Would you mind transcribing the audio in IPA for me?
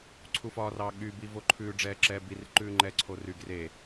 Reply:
ǀʰufɒːrɑːɠy bivoǃʰʉː ɖ͡ʐɛːǁɛːbir ǃʉːŋ͡ǃɛǀʰoryɡ re

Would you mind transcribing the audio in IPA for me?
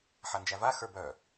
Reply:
ħand͡ʒæva xə˞bœ

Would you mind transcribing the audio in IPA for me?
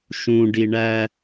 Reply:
ʃũɖi ɳæ

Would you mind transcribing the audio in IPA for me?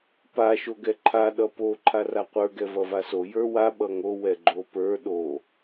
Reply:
pa ʃoɡɛǃʰa ɗʌpo ǃʰaraqʷə˞ ɡɛvʌvaso jə˞wa ɓʌŋo wɛɡ͡ǃopə˞ ɗo

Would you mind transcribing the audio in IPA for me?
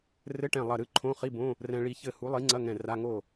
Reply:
rɘ˧˥˧ʈɛ̃˧˩ lˠɐ˧˩ɾɨ˥˩ǃʰõ˧˥˧ χi˧˥˧bõ˧˥˧ | rɛ̃˧ ɭi˧ çɘ˧˩ hu˨˥lˠi˨˥ŋ͡ǀɐ˧˥˧ŋɛ̃˧˩ ra˧˥˧ŋo˥˩

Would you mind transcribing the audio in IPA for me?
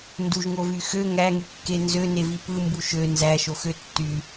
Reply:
nduʒŋovy xø ŋæŋykːe nzønevi pɯmbu ʃø nzæʃoxø tːy

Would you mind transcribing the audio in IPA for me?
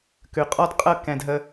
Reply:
kʉ˨ qʼɔ˧d qʼɤ˦˨ kɛ̃˧dɦə˦

